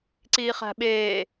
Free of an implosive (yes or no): no